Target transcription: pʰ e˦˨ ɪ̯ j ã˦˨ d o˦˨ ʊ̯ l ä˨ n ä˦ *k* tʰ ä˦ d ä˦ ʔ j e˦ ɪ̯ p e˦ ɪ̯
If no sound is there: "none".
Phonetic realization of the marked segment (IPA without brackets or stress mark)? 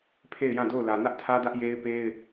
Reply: ʔ